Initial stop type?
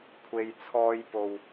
aspirated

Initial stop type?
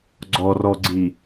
click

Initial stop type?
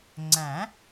click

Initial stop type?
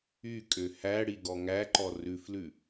ejective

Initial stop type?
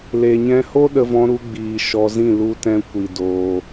implosive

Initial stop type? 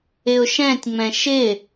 plain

